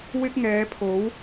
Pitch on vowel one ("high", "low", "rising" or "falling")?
high